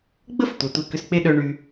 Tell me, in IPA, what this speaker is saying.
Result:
ɡ͡b ə˦ f tʷ œ˨ tʷ e˧ k ʏ˧ s k͡p e˦ ɗ œ˧ ɳ y˧

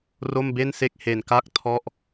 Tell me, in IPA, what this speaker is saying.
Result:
r o˥˩ m b e˥˩ n s e˥˩ k̚ h e˨˩ n k a˥˩ k̚ tʰ ɔ˥˩ ʔ

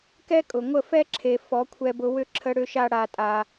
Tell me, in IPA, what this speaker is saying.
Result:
k ɛ˥ kʼ ʊ˩ ŋʷ ə˥˩ f ɛ˥ ǁʰ e˩ f ɔ˩˥ kʷʰ ɛ˧ b ʊ˧ w ʏ˥˩ ǁʰ ə˧ ɽ ʏ˧ ʃ a˧ ɽ a˧ tʼ a˧

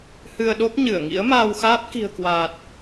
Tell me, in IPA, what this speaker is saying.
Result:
h ɨ˧ ə̯ ɗ o˦˥ p̚ ɲ ɨ˧˩ ə̯ ŋ ḭ˧˥ ə̯ m aː˧ w x aː˦˥ p̚ k i̤˨˩ ə̯ k w aː˨˩ t̚

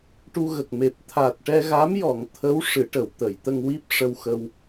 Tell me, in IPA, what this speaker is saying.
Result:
ʈ u˧ ɣ ə˨˩ k̚ m e˨˩ p̚ t̪ʰ a˨˩ t̚ ʈ ɛ˧ ɣ a˧˥ m j ɔ˨˩˨ ŋ t̪ʰ ə˧˥ w ʂ ɨ˨˩˦ ʈ ə˨˩˨ w t̪ ə˨˩˨ j t̪ ə˧ ŋ w i˦˥ p̚ ʂ ə˧ w x ə˧ w

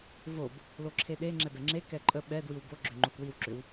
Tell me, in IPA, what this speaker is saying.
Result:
v o b | l o ǁʰ e ɗ e ŋ͡ǁ ɛ b ɛ ŋ͡ǁ e k ɛ ǃʼ ə ɓ ɛ d w i w b o ɡ͡ǁ ʏ ŋ͡ǃ o k w i w ǁ ʏ w

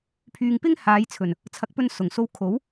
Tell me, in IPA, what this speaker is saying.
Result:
pʰ yː˨ ŋ p ɪ˥ ŋ h aː˨˧ j t͡sʰ ɵ˨˩ n | t͡sʰ ɐ˨˥ k̚ p ɵ˧ n s ʊ˨˩ ŋ s o˧ w kʰ o˨˥ w

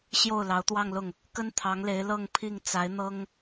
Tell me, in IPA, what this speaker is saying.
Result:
ɕ j o˥˩ ʊ̯ l ɑ˧˥ ʊ̯ t̪ w ɑ˥˧ ŋ l ʊ˥˩ ŋ | k ə˥ n t̪ʰ ɑ˧˥ ŋ l e˧˥ ɪ̯ l ɤ˥˧ ŋ pʰ i˥˩ ŋ t͡s a˧˥ ɪ̯ n̪ ɤ˥ ŋ

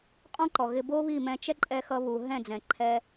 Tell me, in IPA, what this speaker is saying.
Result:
qʼ ɔ̃˦ ǃ ɔ˨ ɣ ɪ˧ b o˦ β i˦˨ m ɛ̃˧ t͡ʃ ɛ˦ ǃʼ ɛ˧ x ʌ˧ β u˨ ɦ ɛ̃˦˨ d͡z ɛ̃˨ ǃʰ ɛ˧

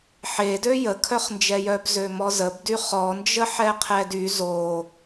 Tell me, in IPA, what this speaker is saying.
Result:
ħ e d ø j ə kʰ œ χ n d͡ʒ ɛ j œ b z ø m ɔ z ə b d y χ ɔ n d͡ʒ ə ħ ɛ qʰ ɛ d y z o

